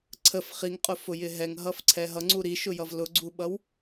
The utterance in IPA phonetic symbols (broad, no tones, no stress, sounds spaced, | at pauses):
ǀʰ ə f χ i ŋ qʼ ʊ f ʊ j ɪ ɦ ɛ ŋ ɦ ʌ f ǀʰ ɛ ɦ ʌ ŋ͡ǀ u ɾ i ʃ ʊ j ʌ v l ʊ ɡ͡ǀ u ɓ ʌ w